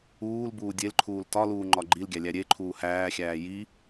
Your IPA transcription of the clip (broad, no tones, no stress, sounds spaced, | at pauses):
uː l b uː dʲ e l ǃʰ uː l t ɒ l uː ŋ͡ǃ ɒ ɡ͡ǃ i l ɡʲ æ lʲ æ ɾʲ e ǃʰ uː h æː xʲ æː j i